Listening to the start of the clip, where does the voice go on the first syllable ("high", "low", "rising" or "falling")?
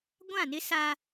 falling